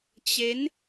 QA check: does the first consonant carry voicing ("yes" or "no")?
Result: no